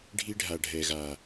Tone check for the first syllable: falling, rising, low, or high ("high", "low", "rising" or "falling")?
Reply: high